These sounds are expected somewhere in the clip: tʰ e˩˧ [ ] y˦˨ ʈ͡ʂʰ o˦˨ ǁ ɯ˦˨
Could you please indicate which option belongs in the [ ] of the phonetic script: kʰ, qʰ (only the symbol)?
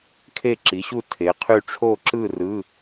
qʰ